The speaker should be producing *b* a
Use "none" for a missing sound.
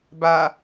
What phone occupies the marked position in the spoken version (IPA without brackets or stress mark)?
b